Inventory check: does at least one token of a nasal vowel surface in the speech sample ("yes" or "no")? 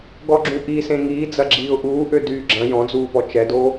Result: yes